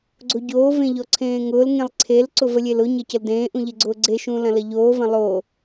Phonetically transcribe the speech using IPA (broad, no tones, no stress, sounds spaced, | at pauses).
ɡ͡ǀ o ɟ oː v ẽ ʎ ɔ ǀʰ ẽː ŋ ʊː l ŋ ẽ lˠ ǀʰ e l ǀ ʊ v ə lʲ e l ʊ ɲ ɐ c ə l d ẽː ʔ ũ ʎ e ɡ͡ǀ ʊː ɡ͡ǀ e ʃ ũː l ɐ̃ l ɐ ʎ oː v ɐ̃ lˠ oː